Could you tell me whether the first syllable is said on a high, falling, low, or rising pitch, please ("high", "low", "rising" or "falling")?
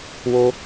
high